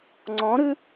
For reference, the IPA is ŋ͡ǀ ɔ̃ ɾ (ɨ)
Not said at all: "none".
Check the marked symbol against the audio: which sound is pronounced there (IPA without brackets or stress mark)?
ɨ